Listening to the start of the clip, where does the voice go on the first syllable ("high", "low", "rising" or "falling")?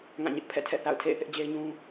falling